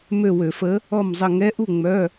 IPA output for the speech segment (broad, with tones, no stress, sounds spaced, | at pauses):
m ø˦˨ w ø˧˩˧ f ə˧˥ | ɔ˦˨ m zˤ ə˦˨ ŋ ɛ˧˥ ʔ u˦˨ ŋ͡m œ˧˥˧